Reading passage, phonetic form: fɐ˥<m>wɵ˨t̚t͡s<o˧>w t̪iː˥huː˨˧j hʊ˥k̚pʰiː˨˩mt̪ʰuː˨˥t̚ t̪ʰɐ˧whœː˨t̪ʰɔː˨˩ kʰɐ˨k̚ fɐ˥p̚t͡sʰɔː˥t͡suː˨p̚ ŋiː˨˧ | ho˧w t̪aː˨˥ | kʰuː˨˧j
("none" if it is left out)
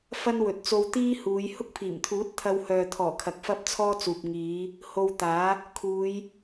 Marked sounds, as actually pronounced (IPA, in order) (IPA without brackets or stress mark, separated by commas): n, o˧